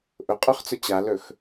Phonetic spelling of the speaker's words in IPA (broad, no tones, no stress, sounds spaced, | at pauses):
ʔ ʊ qʼ œ χ t͡s ʊ t͡ɕ a l ɵ x